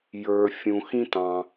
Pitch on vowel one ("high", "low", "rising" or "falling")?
low